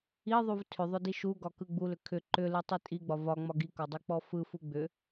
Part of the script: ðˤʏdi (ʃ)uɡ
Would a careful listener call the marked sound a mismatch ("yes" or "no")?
no